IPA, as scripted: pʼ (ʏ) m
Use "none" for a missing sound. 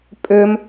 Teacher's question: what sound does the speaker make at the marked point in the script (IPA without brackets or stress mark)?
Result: ʏ